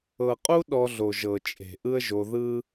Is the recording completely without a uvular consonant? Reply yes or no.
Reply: no